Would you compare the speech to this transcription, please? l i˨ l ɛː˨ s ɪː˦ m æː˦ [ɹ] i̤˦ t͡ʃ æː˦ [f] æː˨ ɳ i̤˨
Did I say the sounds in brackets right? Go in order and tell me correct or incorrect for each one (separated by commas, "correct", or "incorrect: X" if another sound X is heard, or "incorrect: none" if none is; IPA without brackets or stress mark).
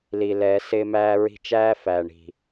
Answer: correct, correct